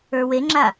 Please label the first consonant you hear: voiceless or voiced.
voiced